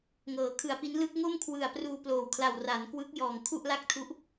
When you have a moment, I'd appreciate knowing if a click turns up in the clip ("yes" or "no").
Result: no